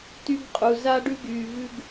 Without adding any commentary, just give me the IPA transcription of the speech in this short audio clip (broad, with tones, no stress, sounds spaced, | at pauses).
t y˦ ɡ qʼ u˨ z a˦ ɖ ʉ˦ ɡ yː˨ v ʉ˦ ɡ